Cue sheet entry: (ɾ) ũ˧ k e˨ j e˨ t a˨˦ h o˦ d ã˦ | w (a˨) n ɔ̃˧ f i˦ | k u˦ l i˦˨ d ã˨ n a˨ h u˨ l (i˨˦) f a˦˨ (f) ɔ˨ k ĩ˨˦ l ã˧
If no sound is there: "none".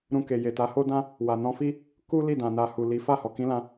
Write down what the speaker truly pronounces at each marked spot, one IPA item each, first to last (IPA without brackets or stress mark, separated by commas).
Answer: ɾ, a˨, i˨˦, h